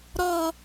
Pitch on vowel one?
high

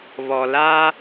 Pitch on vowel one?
low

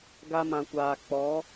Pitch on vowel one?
high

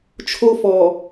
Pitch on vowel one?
high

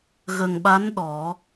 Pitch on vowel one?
low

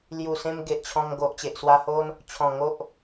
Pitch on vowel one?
low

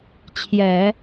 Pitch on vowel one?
low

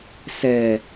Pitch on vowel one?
low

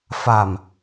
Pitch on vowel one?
low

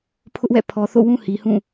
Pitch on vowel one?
high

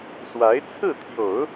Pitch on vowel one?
rising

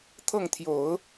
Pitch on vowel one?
falling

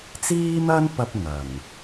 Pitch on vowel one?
high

